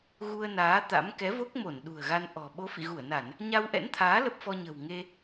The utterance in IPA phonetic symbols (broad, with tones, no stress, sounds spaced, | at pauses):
ɣ u˧ ə̯ n aː˨˦ t̪ a̰˧˥ m k ɛ˨˦ v o˦˥ k̚ m o˧˩ n ɗ ṳ˨˩ ə̯ ɣ a˧ n ʔ ɔ̤˨˩ ɓ o˨˦ f ḭ˧˨ ɣ u˧˩ ə̯ n a˧˩˨ n | ɲ a˧ w ʔ ɛ̰˧˥ n t̪ʰ aː˨˦ l ə˦˥ p̚ f ɔ˧ ɲ ə̤˨˩ w ŋ e˧